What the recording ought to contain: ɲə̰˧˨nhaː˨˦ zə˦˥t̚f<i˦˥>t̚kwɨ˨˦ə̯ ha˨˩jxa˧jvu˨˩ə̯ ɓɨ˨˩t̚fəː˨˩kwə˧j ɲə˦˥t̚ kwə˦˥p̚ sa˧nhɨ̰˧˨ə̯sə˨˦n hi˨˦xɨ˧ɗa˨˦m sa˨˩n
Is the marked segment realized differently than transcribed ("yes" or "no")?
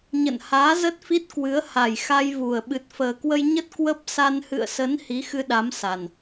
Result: no